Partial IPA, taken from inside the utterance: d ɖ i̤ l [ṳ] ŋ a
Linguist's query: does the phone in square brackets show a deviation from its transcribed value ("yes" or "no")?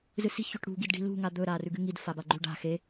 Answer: no